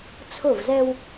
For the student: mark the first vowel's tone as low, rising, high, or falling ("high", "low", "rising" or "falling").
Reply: falling